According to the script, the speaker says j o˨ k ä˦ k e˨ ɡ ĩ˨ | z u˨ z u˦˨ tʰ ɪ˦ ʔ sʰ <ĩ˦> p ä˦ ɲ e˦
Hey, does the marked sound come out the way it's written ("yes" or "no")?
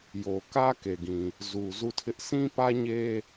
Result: yes